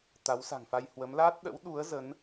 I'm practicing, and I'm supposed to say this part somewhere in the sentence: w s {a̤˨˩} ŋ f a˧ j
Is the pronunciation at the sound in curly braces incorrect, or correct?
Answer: correct